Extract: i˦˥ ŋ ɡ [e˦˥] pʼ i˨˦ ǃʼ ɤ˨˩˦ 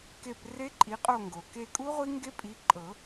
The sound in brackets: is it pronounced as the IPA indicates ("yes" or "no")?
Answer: yes